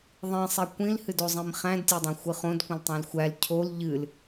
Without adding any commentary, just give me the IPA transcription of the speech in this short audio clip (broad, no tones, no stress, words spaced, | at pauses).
ðˤĩsˤi kʷĩlhɨdozˤĩm χæ̃dtʲædˤæ̃xʷɨ χõdkʷə̃ltˤæ̃l xʷæl cʰol ʎɨl